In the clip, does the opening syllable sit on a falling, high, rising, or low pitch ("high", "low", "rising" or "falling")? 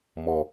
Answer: low